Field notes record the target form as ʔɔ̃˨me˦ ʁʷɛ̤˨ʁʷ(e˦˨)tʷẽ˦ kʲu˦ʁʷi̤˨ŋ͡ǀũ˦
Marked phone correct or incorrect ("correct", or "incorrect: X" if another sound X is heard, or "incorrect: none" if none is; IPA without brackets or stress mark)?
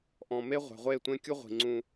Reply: correct